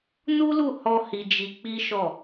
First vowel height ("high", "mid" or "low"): high